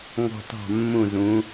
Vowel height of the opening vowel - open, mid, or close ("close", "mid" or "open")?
mid